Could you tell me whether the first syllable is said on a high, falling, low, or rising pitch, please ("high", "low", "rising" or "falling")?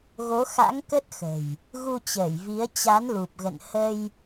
rising